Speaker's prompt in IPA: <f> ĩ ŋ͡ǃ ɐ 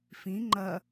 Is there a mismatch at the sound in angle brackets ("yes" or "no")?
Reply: no